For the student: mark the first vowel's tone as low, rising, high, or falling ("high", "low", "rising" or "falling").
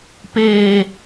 low